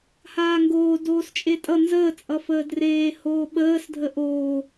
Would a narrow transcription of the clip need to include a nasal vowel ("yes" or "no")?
no